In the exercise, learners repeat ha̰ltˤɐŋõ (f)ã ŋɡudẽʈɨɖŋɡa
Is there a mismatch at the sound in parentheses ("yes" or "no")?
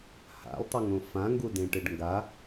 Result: no